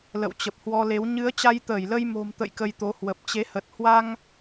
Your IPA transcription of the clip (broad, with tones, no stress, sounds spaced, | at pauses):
l ə̰˧˨ w t͡ɕ ə˨˩ p̚ h w ɔ˧ l e˨˦ w ɲ ɨ˨˦ ə̯ t͡ɕ a˧ j t̪ əː˧˩ j l ə˧ j m o̤˨˩ m t̪ ə̰˧˨ j k ə˧ j t̪ o˨˦ h w ə˨˩ p̚ t͡ɕ e˨˦ h ə˨˩ t̚ h w a˧ ŋ